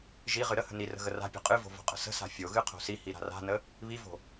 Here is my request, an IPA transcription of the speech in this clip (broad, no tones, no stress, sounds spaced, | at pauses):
ʒ i ʁ ɨ ɾ ə h ə̤ n i r ə̤ ɣ ə r a̤ pʲ o̤ qʼ ɨ v o̤ v o̤ qʼ ə̤ s ə̤ s a̤ fʲ o ɣ ɨ qʰ o̤ s i h i ɾ a̤ r a̤ n ə | β i v o̤